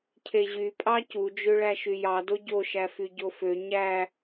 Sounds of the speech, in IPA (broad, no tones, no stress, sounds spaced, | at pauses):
cʰ e ʑ y pʼ ɑ c u d͡ʒ ø ɭ æ ʃ y j ɑ d o ɟ o ʃ æ f y ɟ o f ø ɲ æ